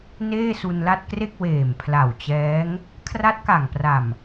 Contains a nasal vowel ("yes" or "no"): no